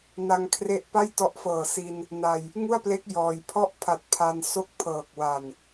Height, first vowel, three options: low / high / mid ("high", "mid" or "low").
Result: low